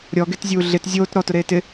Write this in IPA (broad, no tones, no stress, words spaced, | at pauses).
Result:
ɾʲɔɡetzʲuː ɮɪt zʲoːt ɾɔtʊɾeː tɪ